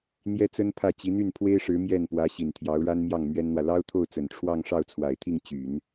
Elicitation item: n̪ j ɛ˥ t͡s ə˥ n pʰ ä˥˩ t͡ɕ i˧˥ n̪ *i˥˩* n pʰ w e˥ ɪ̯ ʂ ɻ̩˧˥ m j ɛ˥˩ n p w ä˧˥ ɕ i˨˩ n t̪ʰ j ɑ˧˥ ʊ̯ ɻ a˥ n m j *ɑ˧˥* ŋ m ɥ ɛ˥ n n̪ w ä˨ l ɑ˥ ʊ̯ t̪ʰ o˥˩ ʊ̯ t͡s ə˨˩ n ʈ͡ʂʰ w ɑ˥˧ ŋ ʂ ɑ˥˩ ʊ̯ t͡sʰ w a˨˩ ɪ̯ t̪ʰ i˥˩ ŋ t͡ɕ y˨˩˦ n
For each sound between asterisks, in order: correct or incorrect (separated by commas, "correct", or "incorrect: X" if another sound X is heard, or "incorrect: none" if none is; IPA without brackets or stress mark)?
incorrect: y˥˩, incorrect: ɑ˥˩